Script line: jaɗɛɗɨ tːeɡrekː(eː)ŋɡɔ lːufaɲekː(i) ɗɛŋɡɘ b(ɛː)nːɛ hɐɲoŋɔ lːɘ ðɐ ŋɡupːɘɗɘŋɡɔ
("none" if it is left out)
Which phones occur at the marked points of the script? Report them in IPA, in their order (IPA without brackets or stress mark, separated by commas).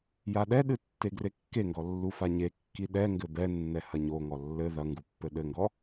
e, i, ɛ